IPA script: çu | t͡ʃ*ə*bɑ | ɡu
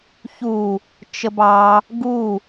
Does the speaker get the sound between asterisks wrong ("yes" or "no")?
no